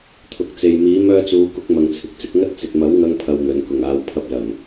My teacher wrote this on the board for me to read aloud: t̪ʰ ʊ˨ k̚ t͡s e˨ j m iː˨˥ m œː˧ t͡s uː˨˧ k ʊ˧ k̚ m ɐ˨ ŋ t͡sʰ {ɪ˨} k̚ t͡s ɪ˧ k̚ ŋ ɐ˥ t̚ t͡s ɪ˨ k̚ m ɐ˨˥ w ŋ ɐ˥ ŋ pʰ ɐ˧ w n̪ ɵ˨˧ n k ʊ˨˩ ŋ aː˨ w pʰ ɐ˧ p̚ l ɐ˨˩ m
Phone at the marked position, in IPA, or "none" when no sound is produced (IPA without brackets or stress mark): ɪ˨